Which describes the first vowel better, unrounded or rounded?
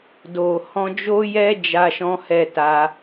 rounded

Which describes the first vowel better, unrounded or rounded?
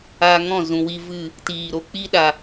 unrounded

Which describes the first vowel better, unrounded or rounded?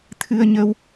unrounded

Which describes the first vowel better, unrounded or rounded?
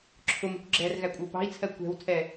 rounded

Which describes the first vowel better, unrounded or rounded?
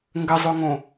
unrounded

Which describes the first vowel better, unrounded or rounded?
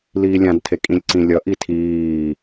unrounded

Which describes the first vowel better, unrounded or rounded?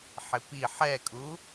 unrounded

